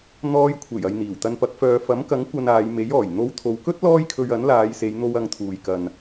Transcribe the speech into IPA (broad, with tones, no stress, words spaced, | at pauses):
n̪ɔː˧jkʷʰe˨˩j ɐ˨jn̪iː˨˩wt̪ɐ˧npɐ˨˥k̚ fœː˨fɐ˨˥mkɐ˨˥ŋ kʷɐ˧naː˨˧j me˨˥jɔː˨˩j n̪o˧wt̪ʰo˨˧wkɵ˥t̚ lɔː˥jkʰɵ˧ɥɐ˨˥n laː˨˧jse˨˧jn̪o˧w ɐ˧ŋt̪ʰuː˨jkɐ˨n